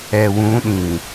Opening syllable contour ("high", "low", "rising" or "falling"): low